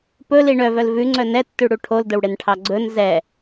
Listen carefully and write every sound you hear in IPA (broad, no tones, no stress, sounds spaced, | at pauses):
p ɵ l i ɳ œ v œ l v ʉ ŋ͡ǀ œ n ɛ tː ʉ ɽ u ʈʰ o l d ɵ w ɽ e n ʈʰ ɑ ɡ͡ǀ ɵ n z ɛ